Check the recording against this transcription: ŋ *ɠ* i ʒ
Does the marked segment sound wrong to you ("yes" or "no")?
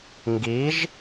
yes